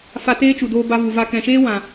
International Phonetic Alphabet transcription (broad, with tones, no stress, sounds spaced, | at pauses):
f a˧ t eː˦ t͡ʃ u˨ d oː˧ b a˧ v u˨ v a˧ k ɛ̃˨ ʃ eː˦ w ã˨